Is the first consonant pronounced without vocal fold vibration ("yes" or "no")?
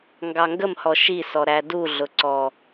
no